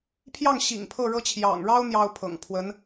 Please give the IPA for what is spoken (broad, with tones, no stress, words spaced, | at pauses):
pʰjɑ˥˩ŋɕḭ˨˩ŋ pʰɤ˥˩ɻɤ˥ t͡ɕʰjɑ̰˨˩ŋɻɑ˥ʊ̯ n̪jɑ˥ʊ̯pʰɤ̰˨˩ŋ pʰwə˧˥n